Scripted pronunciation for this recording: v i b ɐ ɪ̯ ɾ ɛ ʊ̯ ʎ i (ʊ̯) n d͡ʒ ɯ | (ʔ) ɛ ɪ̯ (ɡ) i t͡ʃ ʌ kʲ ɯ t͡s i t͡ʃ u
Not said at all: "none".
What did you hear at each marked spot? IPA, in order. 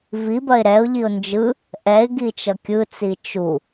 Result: ʊ̯, ʔ, ɡ

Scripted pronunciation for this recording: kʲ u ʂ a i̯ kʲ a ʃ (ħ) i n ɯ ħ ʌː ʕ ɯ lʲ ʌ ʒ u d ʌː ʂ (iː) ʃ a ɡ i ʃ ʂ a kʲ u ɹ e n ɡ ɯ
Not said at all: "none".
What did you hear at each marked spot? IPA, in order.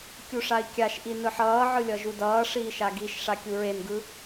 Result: ʔ, iː

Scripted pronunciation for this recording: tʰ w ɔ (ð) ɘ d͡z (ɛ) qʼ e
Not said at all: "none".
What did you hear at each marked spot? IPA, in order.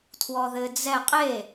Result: ð, ɛ

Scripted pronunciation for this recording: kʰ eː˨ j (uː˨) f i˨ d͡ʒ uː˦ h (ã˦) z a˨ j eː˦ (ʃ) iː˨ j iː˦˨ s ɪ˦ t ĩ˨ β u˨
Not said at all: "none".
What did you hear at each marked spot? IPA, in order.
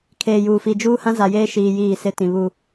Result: uː˨, ã˦, ʃ

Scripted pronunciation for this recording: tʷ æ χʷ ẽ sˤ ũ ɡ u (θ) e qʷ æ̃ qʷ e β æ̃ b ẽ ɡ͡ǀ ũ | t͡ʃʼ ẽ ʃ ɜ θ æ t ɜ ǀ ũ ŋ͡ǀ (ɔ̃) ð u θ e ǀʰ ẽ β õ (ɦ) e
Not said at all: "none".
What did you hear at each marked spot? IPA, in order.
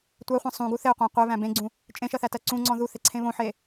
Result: θ, ɔ̃, ħ

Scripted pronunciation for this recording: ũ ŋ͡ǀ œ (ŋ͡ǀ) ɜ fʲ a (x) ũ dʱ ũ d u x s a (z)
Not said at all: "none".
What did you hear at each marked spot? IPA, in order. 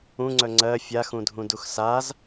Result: ŋ͡ǀ, x, z

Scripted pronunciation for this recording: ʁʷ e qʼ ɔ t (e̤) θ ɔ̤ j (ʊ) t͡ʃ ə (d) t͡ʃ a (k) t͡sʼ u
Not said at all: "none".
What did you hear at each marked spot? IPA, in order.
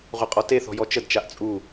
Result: e, ɔ, d, ʔ

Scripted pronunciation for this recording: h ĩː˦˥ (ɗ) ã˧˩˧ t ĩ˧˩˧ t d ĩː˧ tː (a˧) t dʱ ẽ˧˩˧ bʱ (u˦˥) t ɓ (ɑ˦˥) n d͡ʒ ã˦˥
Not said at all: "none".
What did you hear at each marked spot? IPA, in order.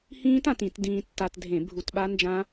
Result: t, a˧, u˧, a˦˥

